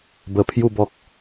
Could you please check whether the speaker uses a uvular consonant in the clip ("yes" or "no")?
no